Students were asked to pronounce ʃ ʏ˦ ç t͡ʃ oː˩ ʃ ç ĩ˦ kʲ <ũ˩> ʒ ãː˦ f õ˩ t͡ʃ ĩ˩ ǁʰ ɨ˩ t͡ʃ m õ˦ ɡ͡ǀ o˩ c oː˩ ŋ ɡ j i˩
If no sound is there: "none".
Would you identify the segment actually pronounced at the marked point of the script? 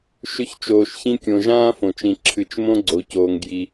õ˩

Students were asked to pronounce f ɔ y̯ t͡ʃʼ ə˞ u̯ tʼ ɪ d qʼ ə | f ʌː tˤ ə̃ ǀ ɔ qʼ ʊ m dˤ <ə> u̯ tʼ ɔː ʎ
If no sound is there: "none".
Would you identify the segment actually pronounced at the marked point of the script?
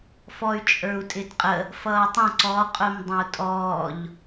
ə̃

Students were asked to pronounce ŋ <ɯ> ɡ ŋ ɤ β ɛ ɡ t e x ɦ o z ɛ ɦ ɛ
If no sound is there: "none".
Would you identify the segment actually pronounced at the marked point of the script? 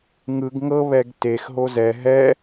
ɯ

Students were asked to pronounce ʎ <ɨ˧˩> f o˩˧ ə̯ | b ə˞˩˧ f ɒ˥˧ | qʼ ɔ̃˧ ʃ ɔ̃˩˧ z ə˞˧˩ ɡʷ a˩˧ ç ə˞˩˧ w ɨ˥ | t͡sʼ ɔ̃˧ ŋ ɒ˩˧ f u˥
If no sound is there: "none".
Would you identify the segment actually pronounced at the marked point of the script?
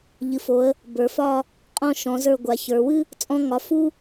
ɨ˩˧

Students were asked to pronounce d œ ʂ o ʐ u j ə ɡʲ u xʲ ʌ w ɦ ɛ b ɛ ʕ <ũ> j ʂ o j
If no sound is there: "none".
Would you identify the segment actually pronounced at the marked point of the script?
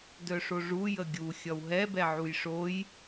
u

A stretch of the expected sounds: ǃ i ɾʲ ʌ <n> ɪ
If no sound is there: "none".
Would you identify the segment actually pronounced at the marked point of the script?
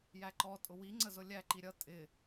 tʼ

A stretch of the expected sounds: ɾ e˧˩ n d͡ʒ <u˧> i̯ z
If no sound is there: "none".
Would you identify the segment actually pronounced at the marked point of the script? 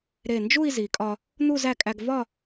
u˥˧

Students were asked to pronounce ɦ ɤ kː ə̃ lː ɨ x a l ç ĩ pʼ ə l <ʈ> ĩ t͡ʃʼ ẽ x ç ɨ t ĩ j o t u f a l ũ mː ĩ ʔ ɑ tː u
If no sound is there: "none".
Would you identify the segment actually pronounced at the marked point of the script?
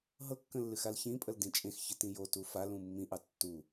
d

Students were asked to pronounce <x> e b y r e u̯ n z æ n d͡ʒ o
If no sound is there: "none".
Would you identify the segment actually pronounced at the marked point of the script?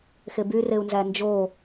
x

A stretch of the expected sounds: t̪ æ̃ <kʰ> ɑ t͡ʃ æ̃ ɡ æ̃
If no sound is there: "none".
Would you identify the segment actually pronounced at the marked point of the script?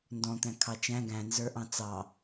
kʰ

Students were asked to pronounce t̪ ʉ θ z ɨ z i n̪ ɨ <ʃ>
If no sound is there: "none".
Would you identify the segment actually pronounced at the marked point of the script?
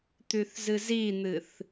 θ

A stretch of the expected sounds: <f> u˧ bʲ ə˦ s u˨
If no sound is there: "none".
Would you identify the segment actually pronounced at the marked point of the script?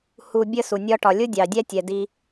h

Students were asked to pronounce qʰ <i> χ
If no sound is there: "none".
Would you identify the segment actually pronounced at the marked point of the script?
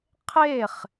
e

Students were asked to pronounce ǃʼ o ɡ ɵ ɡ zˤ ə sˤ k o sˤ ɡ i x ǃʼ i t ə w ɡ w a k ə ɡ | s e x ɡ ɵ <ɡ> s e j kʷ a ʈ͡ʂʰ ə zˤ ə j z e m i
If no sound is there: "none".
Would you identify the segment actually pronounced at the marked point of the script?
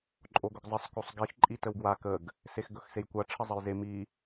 x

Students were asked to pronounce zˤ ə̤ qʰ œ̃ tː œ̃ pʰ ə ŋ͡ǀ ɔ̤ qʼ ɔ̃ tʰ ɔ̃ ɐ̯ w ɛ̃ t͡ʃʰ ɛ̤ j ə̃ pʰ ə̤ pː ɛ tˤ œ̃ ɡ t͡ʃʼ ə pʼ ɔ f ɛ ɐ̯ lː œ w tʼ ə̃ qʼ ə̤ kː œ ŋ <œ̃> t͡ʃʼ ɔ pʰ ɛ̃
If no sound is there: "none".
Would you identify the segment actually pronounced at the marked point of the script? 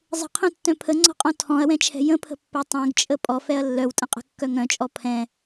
œ̃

